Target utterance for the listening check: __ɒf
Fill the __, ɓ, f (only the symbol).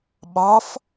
ɓ